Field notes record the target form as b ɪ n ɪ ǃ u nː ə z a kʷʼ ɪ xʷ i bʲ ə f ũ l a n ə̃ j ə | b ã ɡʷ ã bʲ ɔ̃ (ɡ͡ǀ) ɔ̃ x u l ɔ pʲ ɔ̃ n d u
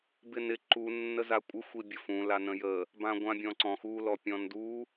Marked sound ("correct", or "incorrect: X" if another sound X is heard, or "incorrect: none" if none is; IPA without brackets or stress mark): incorrect: ǀ